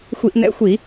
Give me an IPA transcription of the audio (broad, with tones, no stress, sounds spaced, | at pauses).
xʷ i˧˩˧ ʔ n̪ ɛ̰˧˥˧ xʷ i˧˩˧